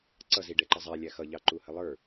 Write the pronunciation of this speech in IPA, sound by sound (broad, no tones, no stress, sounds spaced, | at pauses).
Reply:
ǀ ʌ z i ɖ ɛ ǃ ʌ zˤ æ lʲ æ x ʌ ʎ ɑ ǃ u h ə lˠ ə˞